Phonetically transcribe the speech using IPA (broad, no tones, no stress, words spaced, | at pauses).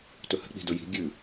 tɵhə̤ k͡pi̤dɵji̤ ɡʲʉ